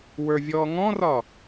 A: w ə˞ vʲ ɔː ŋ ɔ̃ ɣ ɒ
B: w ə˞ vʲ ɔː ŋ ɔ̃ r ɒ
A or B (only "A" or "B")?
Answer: B